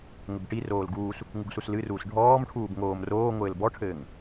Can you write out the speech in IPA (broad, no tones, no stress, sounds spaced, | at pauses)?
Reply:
ŋ ɘ b ʈ i r oː l ɡ uː s | ŋ u ɡ s u s l ɨ r uː s ɖʱ ɔː m ʈʰ uː b ŋ oː m r oː ŋʷ ɘː l b ɔ ʈʰ ɘː ŋ